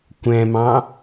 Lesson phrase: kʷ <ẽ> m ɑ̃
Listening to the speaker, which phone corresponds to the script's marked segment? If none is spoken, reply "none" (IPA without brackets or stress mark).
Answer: ɛ̃